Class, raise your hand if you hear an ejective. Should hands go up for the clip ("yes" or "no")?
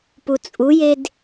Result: yes